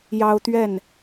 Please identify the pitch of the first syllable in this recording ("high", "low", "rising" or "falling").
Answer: high